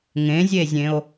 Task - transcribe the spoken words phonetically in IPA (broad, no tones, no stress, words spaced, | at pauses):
ŋẽzʲezʲẽo̯